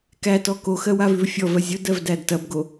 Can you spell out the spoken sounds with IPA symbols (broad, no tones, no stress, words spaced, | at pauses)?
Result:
kætɔ koxɜ wavʉvfʲɔvɜ zʲodɜv dædtɐbɡo